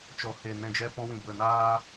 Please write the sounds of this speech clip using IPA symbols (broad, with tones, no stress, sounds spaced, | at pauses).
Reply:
t͡ʃ ɔ˨ h e˨ n ɛ̃˨ d͡ʒ ɛ˧ p ɔ̃˧ w ĩ˨ b ə˨ n aː˧